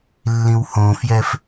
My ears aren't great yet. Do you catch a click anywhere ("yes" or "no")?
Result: no